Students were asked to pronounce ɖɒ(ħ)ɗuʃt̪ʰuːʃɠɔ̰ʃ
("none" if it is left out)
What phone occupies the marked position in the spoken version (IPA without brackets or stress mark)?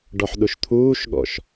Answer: ħ